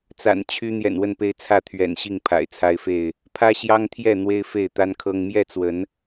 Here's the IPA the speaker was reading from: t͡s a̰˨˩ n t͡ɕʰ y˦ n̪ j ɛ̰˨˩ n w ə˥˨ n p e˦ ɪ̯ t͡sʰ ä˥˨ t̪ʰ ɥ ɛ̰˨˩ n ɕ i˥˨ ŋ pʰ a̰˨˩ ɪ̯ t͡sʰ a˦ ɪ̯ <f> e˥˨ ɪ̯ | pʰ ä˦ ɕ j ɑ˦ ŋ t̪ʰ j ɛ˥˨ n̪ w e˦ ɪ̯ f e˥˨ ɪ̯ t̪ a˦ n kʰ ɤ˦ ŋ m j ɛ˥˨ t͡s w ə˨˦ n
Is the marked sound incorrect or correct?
correct